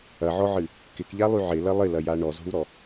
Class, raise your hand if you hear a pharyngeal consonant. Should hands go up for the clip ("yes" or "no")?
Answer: yes